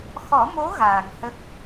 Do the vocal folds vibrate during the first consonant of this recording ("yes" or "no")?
no